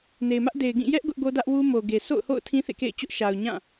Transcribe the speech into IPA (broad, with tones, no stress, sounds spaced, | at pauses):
n e˨ ɪ̯ m ä˦ ʔ d e˨ ɪ̯ ɡ ĩ˦˨ j ɛ˦ ʔ ɡ ʊ˦ ʔ ɡ o˦ d ä˦ ʔ w u˦ m o˨ ɡ e˨ sʰ o̰˦˨ ʊ̯ h o̰˦˨ ʊ̯ tʰ ĩ˦ θ ḛ˦˨ k ḛ˦˨ ɪ̯ t͡ɕ ʊ˦ ʔ ʃ a˨ ʊ̯ ɲ ã˦˨